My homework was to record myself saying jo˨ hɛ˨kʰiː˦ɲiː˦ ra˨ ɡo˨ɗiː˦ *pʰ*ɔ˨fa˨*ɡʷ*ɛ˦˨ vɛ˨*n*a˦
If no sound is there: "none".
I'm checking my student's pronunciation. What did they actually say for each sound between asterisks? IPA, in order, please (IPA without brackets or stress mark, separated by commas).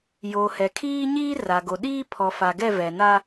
pʰ, ɡ, n